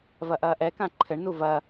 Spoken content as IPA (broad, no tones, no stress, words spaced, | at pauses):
vɐʔɐːʔɛkã ǃʰɘɳn̪u vɐ